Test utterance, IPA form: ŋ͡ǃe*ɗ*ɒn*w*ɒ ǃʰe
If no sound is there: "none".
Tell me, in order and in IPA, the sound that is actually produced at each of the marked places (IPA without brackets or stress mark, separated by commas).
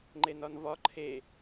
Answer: n, v